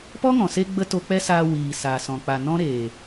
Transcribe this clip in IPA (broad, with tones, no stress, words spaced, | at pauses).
pɔ˦ŋɔ̃˨se˧ɡ͡bə˧ to˧k͡pɛ˦saː˧ wiː˨sa˨ sɔ̃˨k͡pa˨nɔ̃˦ ɾeː˨